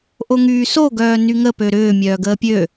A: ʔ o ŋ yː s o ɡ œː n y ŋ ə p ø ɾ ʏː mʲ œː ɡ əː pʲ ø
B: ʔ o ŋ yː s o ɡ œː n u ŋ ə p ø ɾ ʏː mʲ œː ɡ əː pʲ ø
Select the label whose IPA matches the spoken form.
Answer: A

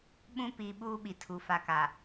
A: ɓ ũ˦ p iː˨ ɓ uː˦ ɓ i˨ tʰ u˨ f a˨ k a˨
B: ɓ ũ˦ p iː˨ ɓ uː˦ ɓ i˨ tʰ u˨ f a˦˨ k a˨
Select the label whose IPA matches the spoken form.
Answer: A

